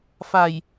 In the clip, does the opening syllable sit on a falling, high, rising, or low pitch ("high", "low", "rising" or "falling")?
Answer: low